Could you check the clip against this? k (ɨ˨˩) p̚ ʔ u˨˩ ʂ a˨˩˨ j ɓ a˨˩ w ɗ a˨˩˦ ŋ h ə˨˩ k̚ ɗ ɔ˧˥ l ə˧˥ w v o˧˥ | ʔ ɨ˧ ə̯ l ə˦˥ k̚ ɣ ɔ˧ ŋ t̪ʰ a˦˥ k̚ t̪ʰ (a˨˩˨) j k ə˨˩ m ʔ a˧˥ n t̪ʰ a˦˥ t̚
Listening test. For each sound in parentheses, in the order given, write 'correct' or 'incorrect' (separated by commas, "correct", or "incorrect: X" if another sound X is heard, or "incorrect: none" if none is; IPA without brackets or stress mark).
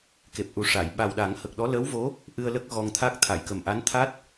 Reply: incorrect: e˨˩, correct